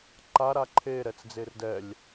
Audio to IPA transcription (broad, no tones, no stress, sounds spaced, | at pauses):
ǃ a ɾ a ǃʰ e ɾ ɛ t͡s d͡z e r d ɛ lʲ